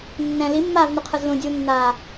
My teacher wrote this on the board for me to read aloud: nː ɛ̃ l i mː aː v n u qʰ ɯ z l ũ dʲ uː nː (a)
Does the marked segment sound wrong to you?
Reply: yes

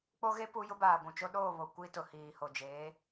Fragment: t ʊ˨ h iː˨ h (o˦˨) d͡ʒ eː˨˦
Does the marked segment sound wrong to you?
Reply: yes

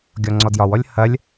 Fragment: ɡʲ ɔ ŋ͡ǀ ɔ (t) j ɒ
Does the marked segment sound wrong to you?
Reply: yes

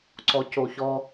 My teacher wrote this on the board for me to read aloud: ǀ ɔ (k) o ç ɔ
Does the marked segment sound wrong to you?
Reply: yes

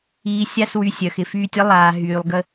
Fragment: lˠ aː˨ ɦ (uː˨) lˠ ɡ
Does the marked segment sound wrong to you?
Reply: yes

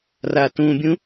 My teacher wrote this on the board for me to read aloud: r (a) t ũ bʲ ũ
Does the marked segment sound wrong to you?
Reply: no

